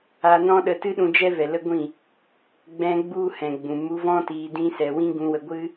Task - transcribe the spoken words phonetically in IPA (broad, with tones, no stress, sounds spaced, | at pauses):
a˧ n ɔ̃˦ ɗ ə˧ t ɨ˦ ɗ ũ˧ d͡ʒ ɛ˦ v ɛ˨ l ə˦ ɡʷ ĩ˦˨ | ɡ͡b ɛ̃˧ ɡ͡b u˦ h ɛ̃˨ ɡ͡b ũ˨ m u˧ v ɔ̃˦ t iː˧ d ĩ˦ s ɛ˧ w ĩ˦ ɡ ũ˧ w ə˧ ɡʷ ɨ˦